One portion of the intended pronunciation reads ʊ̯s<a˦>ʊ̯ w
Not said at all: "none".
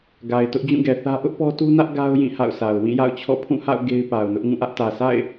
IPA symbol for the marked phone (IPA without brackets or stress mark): a˨